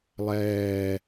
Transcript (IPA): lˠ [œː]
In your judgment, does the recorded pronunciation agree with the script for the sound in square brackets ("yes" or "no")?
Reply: no